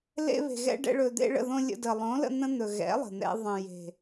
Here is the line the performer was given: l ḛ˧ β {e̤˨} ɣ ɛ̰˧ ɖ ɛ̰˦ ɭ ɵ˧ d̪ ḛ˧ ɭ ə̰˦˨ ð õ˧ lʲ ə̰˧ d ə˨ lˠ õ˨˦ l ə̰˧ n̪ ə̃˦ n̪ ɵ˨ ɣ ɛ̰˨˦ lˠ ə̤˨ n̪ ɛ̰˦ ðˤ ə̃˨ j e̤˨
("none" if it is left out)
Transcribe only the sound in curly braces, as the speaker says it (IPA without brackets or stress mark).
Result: e̤˨